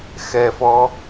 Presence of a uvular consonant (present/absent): absent